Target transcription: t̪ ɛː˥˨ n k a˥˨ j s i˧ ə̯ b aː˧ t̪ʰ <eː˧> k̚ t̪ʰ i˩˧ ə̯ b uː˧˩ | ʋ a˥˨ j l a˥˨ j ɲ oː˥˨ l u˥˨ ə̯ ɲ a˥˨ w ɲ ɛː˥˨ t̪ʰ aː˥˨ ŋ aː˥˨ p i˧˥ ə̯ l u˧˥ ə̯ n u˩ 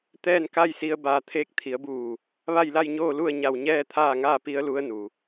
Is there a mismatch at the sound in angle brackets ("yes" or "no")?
yes